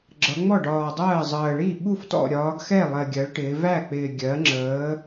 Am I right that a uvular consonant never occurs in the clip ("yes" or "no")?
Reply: yes